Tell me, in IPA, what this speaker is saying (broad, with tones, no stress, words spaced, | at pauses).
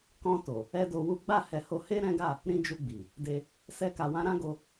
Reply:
kɔ̃˧to˨ | ɛ˦do˧wu˦ ɡ͡ba˦˨ hɛ˧ho˧ he˦ɾɛ̃˦ɡa˦˨ | ɾĩ˦d͡ʒu˧ɡ͡bi˨ | de˧ | sɛ˦ka˧wã˦ ɾã˦ɡo˧